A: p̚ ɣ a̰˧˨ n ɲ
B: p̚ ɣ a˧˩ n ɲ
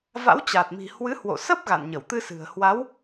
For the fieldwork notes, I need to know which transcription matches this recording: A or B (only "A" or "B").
A